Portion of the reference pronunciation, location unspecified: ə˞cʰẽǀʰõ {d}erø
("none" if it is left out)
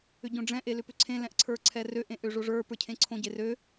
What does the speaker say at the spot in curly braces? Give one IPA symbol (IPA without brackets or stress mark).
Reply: ɟ